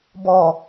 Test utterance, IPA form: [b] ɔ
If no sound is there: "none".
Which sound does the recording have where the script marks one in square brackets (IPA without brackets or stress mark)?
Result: b